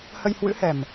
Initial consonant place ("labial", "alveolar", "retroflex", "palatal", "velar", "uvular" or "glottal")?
glottal